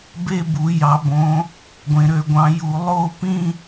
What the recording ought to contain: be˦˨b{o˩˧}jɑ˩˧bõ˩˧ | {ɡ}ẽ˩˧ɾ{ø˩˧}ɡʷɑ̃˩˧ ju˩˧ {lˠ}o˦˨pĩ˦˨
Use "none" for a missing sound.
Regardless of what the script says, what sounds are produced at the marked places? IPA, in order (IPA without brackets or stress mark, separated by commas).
u˩˧, ɡʷ, ø˩˧, lˠ